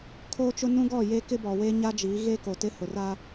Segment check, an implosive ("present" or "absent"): absent